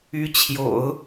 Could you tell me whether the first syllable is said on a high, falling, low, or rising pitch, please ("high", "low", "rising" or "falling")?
rising